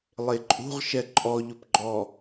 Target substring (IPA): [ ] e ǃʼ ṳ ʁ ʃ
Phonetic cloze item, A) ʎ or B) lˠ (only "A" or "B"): B